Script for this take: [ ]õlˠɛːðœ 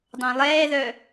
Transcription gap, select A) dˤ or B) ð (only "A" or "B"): A